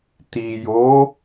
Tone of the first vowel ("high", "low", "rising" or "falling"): low